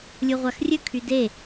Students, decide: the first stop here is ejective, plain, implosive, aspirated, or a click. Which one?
aspirated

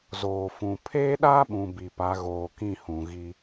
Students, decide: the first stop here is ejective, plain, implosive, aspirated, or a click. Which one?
aspirated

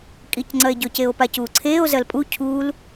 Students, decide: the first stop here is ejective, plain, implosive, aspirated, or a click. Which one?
ejective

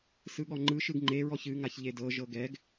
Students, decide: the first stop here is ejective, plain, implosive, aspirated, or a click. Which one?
implosive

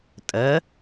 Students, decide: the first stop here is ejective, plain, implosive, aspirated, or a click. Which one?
ejective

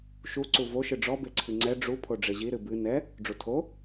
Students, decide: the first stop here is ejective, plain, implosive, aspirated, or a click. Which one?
click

